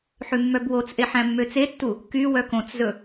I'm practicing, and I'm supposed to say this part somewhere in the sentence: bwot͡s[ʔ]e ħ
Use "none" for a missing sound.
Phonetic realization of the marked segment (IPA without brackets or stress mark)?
ʔ